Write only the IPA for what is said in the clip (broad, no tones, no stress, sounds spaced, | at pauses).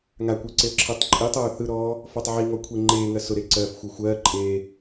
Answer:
ŋ a kʷ ɜ ǀ e ə̯ ǁʰ ɜ tˤ ǃʼ i tˤ oː θ ɯ ɾ ɔː | f ɔ tˤ ʕ i ŋ ɔ kʷʰ e ŋ͡ǃ eː ŋ ɜ s ʊ ɾ e ǀ ɜː f xʷ ɜ xʷ ɜː ǃʼ eː